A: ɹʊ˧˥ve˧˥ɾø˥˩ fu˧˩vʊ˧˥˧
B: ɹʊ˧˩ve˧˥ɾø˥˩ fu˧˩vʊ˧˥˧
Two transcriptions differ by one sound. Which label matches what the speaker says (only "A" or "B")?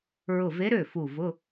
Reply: B